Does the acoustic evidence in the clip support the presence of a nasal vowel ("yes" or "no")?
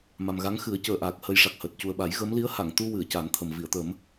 no